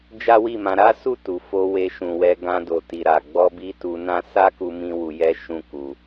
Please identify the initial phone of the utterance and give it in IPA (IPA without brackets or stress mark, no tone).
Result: d͡ʒ